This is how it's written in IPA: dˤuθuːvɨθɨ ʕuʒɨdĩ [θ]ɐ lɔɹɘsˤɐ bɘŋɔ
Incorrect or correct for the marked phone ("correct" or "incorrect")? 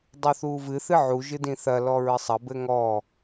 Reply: correct